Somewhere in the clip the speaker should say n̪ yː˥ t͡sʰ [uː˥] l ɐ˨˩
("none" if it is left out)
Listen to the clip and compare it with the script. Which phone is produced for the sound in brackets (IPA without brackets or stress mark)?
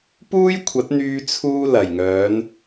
uː˥